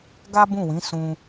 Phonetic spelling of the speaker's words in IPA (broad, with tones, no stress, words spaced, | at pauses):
ɡa˦bũ˦˨wĩ˨˦ sũ˧